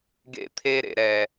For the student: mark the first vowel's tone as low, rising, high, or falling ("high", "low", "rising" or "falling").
falling